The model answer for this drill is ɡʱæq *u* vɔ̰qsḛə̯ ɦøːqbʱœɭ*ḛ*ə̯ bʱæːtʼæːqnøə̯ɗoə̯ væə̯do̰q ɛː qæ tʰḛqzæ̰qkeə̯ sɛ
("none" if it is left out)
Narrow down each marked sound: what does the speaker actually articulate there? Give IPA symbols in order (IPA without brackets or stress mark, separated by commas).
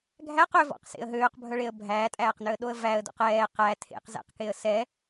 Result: ø, e